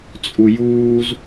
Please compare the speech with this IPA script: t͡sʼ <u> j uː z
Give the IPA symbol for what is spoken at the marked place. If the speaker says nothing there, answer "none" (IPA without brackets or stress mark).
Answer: u